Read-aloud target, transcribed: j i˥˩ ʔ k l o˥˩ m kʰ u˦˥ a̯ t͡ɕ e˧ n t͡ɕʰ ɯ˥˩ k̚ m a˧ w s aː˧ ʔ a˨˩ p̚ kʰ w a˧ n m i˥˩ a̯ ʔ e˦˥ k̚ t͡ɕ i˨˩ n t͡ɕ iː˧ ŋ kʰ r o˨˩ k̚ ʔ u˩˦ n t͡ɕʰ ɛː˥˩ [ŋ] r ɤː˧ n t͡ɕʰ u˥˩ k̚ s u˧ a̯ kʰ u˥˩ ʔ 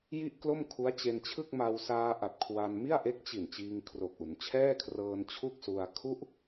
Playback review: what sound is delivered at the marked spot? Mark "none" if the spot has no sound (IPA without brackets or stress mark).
kʰ